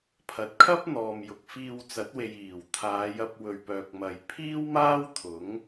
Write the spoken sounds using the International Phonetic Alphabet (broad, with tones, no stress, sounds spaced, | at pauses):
pʰ ɐ˨ t̚ kʰ ɐ˥ p̚ n̪ ɔː˨ m j ʊ˨ k̚ f iː˧ w t͡s ɐ˨˥ t̚ w e˨ j iː˨˩ w t̪ʰ aː˨˧ j ɐ˧ p̚ w ɵ˨ ɥ p œː˨ k̚ m ɐ˨ j pʰ iː˥ w m aː˥ w t̪ʰ ʊ˨˥ ŋ